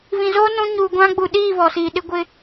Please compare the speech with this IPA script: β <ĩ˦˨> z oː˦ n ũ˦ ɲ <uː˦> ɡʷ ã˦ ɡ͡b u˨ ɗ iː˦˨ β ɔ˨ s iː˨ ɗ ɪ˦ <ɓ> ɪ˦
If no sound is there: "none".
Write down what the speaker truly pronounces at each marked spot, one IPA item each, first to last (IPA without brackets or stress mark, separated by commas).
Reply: ĩ˨, uː˨, ɡʷ